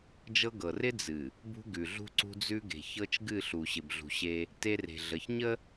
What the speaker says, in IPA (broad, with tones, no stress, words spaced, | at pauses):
d͡ʒɤ˦ɡɤ˨ rɪ˦d͡zɨ˨ | bṳ˦ ɡʉ˨ɮṳ˦ ǀṳ˦d͡zʉ˦ɡe̤˨ çɤ˦t͡ʃɡɨ˦˨ɬu˨ ɕɪ˨bɮṳ˨ɕe˦ | te˦re̤˨ ɮə˨çɲə˦